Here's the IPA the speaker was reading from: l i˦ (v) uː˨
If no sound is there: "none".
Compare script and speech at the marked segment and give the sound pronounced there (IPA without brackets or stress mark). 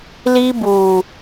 b